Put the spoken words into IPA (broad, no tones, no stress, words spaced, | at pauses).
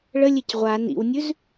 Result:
ɭəlʲec ʁʷa nḭwnʲʉz